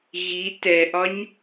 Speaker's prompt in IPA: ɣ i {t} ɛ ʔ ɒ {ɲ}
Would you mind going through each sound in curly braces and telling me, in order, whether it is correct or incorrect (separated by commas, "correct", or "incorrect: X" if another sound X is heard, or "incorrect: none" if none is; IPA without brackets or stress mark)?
correct, correct